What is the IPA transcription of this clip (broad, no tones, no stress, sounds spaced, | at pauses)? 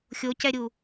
xʲ o c ɛ ɾʲ u